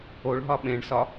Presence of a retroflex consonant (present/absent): present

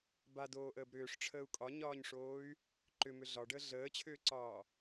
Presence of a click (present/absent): present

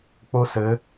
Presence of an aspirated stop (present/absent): absent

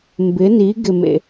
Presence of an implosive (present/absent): absent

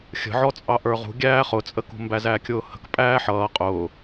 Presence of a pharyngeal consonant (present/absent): present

